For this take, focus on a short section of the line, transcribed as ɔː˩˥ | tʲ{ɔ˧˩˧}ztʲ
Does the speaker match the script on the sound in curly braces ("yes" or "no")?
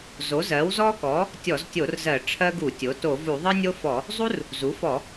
yes